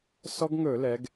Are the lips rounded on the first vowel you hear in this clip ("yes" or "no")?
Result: yes